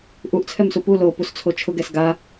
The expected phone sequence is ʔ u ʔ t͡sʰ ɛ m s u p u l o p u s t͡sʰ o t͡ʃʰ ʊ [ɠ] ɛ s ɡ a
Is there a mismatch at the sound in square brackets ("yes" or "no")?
yes